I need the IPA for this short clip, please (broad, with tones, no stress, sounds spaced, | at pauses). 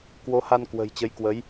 k w o˨˦ h a˧ n k w ə̤˨˩ j t͡ɕ ə˨˦ j k w ə˨˦ j